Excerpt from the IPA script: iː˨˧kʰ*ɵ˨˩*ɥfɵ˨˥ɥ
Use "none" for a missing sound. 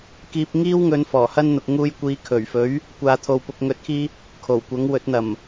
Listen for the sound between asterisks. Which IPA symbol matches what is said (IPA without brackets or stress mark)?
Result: ɵ˨˩